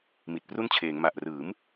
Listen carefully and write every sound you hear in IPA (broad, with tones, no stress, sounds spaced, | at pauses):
m i˨˩ t̚ p r u˥˩ n t͡ɕʰ eː˩˦ ŋ m a˨˩ ʔ r ɯː˩˦ m